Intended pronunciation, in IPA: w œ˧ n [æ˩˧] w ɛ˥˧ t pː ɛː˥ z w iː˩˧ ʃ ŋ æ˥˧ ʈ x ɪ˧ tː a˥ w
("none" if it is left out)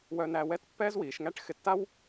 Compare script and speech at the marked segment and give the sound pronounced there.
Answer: æ˧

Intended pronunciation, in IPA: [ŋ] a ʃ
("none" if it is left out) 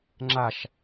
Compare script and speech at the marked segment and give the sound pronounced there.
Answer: ŋ͡ǁ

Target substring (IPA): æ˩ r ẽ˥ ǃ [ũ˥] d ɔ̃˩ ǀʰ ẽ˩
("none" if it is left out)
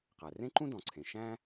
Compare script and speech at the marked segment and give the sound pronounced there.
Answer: ũ˥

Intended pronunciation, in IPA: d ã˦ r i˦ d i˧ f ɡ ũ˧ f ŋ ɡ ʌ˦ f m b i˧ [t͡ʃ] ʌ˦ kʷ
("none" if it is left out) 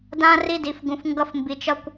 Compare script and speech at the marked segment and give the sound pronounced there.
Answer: t͡ʃ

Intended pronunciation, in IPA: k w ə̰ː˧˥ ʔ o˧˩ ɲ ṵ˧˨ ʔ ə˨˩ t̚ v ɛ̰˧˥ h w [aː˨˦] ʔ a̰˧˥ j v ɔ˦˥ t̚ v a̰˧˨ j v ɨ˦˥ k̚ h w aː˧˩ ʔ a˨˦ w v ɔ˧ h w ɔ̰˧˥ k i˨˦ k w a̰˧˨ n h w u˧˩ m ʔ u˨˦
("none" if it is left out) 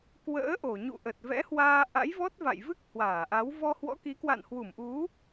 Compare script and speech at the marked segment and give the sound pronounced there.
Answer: aː˧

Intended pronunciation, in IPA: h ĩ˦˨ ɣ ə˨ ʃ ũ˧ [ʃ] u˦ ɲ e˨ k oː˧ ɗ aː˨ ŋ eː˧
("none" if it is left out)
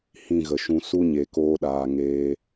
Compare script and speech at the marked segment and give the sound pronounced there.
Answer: s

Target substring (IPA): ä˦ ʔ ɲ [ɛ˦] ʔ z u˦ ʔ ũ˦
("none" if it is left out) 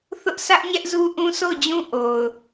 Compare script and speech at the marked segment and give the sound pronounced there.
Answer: ɛ˦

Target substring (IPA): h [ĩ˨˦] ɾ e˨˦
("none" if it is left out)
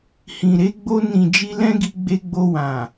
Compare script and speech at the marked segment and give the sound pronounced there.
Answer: ĩ˨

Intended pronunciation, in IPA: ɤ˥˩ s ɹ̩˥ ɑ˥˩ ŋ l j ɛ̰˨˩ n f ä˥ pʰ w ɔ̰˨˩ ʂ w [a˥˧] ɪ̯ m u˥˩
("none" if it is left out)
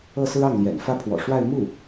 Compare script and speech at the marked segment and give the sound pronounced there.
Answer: a˥˧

